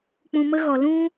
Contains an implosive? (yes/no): no